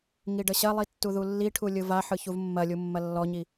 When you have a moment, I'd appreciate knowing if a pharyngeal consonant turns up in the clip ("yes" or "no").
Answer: yes